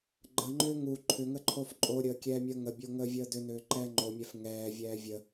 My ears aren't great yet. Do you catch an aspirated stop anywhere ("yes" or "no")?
yes